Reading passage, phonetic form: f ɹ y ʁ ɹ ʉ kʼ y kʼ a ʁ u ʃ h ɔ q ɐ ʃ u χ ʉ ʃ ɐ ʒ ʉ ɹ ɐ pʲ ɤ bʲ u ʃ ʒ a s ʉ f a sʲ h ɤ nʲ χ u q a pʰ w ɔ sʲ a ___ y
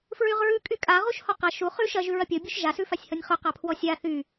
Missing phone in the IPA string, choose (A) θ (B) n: A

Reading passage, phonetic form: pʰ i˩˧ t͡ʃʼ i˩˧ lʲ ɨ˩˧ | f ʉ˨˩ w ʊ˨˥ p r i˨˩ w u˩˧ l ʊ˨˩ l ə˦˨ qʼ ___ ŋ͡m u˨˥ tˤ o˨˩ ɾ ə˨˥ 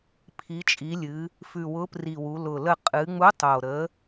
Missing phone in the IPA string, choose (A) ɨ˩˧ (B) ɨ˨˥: A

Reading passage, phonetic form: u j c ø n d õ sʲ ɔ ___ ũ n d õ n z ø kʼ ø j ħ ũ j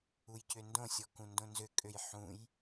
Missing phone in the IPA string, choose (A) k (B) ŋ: A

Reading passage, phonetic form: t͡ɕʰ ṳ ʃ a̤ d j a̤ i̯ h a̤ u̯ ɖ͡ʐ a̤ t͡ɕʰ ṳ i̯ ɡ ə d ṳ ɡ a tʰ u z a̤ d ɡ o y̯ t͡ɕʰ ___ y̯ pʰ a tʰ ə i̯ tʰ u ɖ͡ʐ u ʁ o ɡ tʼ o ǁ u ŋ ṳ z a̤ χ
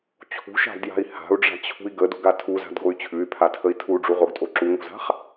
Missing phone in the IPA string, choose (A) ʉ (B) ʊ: A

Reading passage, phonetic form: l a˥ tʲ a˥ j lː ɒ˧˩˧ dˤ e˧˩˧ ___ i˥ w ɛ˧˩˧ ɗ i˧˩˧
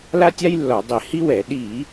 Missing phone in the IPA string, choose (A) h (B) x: A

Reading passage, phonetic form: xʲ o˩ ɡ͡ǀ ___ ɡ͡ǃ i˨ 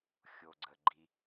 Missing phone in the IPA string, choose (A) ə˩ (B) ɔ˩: A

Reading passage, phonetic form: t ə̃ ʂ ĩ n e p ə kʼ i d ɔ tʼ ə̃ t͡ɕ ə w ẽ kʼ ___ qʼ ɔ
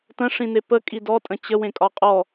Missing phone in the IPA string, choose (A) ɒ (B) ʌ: A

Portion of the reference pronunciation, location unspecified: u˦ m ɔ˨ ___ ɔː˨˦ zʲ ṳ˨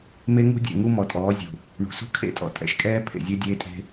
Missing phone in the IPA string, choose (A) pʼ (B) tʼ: B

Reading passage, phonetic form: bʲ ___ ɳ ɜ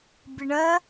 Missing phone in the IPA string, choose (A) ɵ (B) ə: B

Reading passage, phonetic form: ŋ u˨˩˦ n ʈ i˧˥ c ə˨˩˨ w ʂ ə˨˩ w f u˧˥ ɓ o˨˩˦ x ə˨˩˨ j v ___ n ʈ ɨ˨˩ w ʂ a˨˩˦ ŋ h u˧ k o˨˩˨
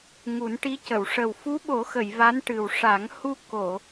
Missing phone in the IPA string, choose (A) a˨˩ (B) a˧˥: B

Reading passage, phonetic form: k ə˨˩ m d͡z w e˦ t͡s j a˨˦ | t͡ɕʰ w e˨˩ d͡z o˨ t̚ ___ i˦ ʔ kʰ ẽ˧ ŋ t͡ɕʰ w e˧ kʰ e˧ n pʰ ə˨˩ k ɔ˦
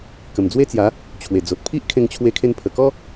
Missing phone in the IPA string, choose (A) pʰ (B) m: A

